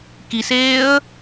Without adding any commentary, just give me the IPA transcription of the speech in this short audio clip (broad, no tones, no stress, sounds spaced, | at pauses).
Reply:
k i s eː ə̯